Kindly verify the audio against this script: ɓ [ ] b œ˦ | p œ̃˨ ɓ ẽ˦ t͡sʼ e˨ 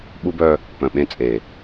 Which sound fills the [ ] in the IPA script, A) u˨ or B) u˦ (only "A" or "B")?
B